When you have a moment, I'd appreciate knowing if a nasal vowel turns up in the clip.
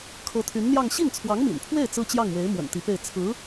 no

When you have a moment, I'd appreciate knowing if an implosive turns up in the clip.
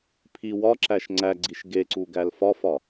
no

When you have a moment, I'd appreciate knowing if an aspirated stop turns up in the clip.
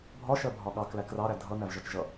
no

